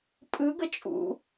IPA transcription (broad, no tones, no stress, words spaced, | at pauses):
pʼɯɡə t͡ʃʼṵ